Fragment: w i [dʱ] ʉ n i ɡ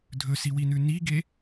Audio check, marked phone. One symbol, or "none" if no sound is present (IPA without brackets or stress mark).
n